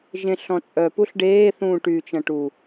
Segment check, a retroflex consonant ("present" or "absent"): present